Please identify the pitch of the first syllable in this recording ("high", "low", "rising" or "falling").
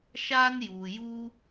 high